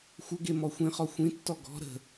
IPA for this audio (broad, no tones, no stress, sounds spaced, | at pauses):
xʷ ə ɡ e m ɔ xʷ ĩ χ ɔ xʷ ĩ tː ɔ ɡ ɔ̤ ɾ ə̤